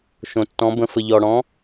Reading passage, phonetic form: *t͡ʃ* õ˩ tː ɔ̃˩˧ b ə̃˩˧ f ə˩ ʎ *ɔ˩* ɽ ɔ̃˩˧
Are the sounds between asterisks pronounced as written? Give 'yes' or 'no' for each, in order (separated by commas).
no, yes